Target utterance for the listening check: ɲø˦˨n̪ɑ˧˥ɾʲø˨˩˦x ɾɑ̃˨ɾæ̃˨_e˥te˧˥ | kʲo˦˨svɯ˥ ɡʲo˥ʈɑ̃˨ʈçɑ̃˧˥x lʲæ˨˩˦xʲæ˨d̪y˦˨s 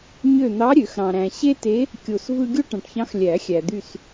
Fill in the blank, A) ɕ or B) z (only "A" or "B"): A